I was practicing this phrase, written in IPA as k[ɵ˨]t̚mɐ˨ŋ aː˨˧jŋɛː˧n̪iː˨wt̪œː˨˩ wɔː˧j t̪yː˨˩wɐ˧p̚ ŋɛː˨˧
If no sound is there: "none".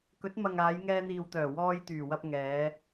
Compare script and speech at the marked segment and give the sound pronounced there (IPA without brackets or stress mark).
ɵ˨˥